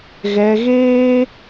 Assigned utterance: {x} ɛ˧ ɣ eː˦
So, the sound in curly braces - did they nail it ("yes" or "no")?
no